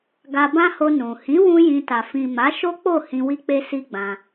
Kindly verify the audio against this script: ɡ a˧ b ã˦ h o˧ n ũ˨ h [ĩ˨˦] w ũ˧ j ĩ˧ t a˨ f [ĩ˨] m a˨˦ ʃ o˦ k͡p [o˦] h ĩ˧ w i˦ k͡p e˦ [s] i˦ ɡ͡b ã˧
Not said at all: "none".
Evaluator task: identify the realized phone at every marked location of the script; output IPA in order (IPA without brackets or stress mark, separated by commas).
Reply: ĩ˨˦, ĩ˨, o˦˨, s